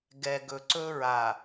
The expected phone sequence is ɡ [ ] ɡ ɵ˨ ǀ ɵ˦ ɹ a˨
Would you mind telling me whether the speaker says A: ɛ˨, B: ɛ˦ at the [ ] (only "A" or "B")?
A